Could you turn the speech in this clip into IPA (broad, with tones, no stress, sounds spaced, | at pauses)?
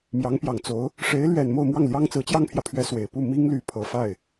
m j ɑ˧˥ ŋ p j ɑ˨˩ ŋ t͡s o˧˥ ʊ̯ | ʂ e˧˥ ɪ̯ l ɥ ɛ˨˩ n m o˥˧ ʊ̯ m w ɑ˥˩ ŋ l j ɑ˥ ŋ t͡s ɹ̩˧˥ t͡ɕ j ɑ˥ ŋ pʰ j ä˨ pʰ ɥ ɛ˥ s w e˨˩ ɪ̯ p u˥˩ m i˥ ŋ l y˧˥ pʰ ɤ˨˩ f a˥˩ ɪ̯